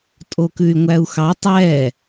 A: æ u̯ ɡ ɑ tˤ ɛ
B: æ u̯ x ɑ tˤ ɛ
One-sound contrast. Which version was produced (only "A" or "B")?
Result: B